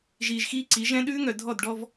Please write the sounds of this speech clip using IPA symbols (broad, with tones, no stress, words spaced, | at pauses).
ʒiː˨ʒxiː˦ǀi˨˦ ʒɛ̃˦ ɗʉː˦ŋœ˨dʱɔ˦˨dɖɔ˦v